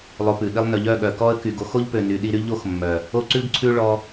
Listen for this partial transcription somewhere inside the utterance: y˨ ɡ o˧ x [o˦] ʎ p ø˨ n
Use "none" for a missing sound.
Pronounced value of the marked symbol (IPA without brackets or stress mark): o˦